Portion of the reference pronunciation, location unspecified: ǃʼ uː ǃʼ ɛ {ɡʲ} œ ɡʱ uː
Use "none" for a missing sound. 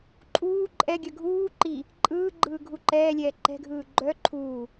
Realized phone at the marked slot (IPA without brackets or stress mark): ɡʲ